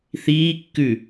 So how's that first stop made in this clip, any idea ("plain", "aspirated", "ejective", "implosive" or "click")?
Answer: plain